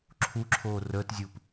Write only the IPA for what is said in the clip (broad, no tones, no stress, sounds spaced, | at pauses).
ǁʰ u ǁʰ oː r əː t zʲ uː p